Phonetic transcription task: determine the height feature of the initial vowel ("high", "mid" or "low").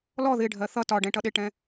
mid